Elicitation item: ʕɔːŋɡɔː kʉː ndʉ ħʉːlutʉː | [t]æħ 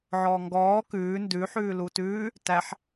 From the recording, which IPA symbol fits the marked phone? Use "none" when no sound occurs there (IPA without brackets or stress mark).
t